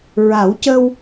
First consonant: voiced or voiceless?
voiced